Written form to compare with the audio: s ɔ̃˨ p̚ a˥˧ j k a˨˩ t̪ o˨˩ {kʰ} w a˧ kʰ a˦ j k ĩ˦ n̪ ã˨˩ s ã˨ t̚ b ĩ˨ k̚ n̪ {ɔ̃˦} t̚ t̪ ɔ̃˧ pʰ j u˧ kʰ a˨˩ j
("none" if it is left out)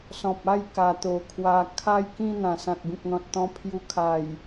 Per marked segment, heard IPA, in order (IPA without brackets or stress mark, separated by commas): kʰ, ɔ̃˨